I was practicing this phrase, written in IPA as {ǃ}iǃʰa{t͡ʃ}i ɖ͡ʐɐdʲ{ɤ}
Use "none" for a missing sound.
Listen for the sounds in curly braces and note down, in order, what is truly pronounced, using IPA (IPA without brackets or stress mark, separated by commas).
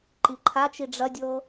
ǃ, t͡ʃ, ɤ